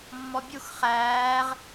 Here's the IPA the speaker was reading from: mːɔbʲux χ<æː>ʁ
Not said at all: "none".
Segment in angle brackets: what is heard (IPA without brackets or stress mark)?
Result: æː